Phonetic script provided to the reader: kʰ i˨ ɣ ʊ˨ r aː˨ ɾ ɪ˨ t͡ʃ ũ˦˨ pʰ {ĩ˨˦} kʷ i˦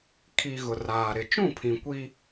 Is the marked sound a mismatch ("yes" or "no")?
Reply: yes